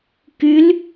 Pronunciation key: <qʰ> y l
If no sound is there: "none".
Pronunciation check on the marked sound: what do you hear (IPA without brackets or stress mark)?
k